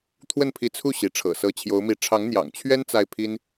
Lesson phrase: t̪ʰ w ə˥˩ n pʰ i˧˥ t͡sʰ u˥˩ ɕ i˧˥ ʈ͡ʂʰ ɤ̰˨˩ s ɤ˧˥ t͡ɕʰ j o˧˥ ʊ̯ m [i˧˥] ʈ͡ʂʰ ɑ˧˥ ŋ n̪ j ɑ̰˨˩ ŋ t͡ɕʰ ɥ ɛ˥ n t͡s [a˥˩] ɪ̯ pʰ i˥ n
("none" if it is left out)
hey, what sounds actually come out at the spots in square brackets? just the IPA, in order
i˧˥, a˥˩

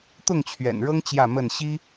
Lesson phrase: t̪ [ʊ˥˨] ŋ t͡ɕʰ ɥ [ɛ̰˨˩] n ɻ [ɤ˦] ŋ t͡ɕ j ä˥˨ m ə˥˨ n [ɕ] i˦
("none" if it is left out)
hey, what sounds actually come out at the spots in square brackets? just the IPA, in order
ʊ˥˨, ɛ̰˨˩, ɤ˦, ɕ

